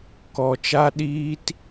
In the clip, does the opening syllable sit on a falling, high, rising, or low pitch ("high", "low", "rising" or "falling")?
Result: low